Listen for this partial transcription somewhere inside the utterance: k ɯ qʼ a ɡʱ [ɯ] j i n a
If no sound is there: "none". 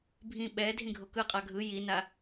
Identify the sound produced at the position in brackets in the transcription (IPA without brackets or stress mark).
ɯ